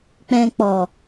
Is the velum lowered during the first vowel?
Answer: yes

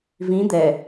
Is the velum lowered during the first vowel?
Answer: yes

